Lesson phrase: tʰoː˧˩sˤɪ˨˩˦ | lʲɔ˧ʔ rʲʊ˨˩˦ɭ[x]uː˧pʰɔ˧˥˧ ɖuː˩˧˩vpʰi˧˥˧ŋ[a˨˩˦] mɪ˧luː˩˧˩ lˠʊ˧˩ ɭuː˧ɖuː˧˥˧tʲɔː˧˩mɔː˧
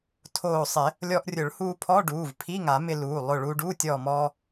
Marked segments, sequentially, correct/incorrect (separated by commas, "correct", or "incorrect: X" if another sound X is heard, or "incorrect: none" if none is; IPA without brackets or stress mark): incorrect: h, correct